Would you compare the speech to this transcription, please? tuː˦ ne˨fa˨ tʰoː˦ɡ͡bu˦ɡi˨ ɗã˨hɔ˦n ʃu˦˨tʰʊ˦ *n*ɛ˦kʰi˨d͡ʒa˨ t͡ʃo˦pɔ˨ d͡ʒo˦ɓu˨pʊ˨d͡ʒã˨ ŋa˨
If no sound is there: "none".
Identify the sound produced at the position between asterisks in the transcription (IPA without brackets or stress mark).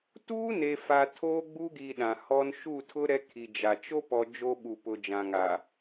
ɾ